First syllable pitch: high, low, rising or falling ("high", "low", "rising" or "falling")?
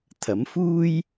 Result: rising